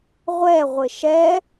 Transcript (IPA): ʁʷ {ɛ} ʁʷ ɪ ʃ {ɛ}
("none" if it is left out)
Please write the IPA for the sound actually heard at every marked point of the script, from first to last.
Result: ɛ, ɛ

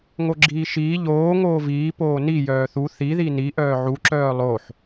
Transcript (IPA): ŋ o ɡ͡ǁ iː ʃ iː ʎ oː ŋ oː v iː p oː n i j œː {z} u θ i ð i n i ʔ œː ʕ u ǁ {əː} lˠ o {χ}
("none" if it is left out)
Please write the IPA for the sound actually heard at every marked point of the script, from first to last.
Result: θ, œː, ħ

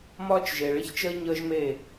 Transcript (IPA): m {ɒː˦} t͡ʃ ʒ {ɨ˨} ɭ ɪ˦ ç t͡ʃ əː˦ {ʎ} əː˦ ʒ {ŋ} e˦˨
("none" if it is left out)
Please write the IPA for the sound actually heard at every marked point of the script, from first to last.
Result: ɒː˦, e˨, ɲ, m

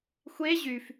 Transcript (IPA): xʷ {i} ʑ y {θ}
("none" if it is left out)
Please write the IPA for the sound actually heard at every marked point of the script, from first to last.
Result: e, f

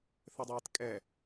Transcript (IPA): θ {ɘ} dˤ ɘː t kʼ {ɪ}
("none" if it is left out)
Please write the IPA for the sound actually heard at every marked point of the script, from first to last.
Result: ɘ, ɛ

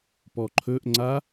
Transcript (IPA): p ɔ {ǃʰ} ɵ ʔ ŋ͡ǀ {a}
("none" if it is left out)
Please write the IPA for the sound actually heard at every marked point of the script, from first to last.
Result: ǃʰ, a

